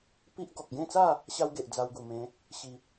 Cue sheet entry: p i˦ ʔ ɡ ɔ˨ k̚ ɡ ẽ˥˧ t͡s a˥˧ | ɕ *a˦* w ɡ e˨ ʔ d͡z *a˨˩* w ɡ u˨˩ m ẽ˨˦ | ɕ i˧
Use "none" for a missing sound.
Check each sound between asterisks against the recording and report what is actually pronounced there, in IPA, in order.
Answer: a˦, a˧

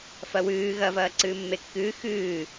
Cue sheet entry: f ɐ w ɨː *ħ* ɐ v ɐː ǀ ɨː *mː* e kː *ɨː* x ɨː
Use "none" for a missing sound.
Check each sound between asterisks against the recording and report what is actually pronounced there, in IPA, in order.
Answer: ɣ, mː, ɨː

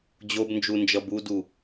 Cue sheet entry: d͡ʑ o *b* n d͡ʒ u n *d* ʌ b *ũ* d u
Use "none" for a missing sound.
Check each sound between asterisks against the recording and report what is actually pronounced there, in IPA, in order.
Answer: b, d͡ʒ, u

